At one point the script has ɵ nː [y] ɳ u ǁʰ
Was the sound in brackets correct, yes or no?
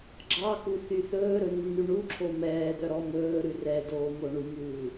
yes